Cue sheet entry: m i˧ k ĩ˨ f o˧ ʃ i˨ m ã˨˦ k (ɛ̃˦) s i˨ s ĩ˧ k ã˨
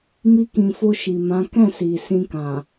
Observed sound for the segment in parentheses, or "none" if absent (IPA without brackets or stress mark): ɛ̃˦˨